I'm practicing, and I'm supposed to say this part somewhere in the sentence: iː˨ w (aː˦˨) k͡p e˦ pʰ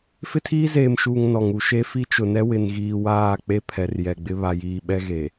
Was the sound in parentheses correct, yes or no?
yes